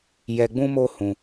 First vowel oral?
yes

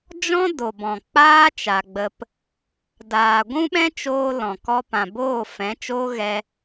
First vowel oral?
no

